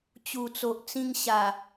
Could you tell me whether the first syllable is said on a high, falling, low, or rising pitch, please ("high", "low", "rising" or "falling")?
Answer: low